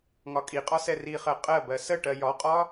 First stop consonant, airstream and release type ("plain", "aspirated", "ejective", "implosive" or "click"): ejective